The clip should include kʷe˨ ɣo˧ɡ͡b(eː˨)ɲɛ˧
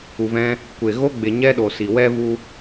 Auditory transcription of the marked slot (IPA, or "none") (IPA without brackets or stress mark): e˨